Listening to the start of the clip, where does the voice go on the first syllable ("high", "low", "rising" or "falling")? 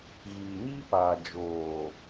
low